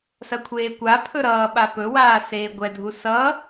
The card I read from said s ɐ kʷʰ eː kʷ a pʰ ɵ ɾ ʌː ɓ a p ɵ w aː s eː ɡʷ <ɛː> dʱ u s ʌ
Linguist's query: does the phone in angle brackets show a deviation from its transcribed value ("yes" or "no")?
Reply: yes